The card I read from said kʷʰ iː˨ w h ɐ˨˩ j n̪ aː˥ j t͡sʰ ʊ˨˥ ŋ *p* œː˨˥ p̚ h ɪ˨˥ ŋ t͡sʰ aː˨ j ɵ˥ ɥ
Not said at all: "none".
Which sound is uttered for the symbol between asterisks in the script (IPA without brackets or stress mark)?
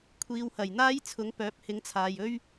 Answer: p